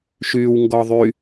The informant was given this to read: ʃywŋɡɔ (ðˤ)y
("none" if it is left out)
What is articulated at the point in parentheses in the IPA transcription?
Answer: ðˤ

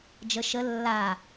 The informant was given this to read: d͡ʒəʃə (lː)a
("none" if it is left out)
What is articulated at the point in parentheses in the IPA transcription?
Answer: lː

